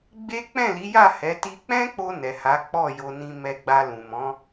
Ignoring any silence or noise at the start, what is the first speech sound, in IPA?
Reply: ɡ͡b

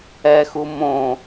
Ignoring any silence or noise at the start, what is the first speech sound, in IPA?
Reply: ɛ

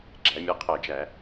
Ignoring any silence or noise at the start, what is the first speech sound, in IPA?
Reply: ɡ͡ǁ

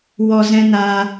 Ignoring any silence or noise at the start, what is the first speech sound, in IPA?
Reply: w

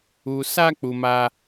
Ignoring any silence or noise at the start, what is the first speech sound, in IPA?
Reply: u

